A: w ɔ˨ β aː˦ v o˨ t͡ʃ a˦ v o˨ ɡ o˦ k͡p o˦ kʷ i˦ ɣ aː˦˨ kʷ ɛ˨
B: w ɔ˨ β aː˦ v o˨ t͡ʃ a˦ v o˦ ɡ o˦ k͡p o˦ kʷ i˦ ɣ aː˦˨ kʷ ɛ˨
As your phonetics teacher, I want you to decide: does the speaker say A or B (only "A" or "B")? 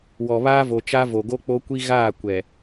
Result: A